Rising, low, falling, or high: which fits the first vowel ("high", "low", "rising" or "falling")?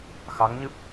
rising